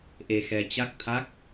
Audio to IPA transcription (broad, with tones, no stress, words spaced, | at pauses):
ʔe˧xɛ˧ t͡ɕa˦˥k̚t̪ʰa˦˥k̚